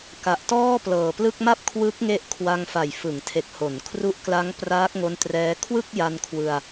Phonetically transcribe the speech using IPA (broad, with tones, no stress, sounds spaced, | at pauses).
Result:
k a˨˩ ʔ t ɔː˥˩ p l ɤː˨˩ p l ɯ˥˩ k̚ m a˥˩ p̚ kʰ w ɯ˦˥ k̚ ŋ e˦˥ ʔ kʰ w a˧ ŋ f a˨˩ j f ɯ˩˦ ŋ tʰ e˨˩ k̚ h o˩˦ n kʰ r u˦˥ ʔ k l a˦˥ ŋ p r aː˦˥ k̚ ŋ o˦˥ n t r ɛː˦˥ kʰ w ɯ˥˩ k̚ j a˧ n kʰ w ɯ˧ a̯